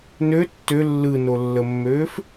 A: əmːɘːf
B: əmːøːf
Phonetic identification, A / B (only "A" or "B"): B